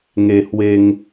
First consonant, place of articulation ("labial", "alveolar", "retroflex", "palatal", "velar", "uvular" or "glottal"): velar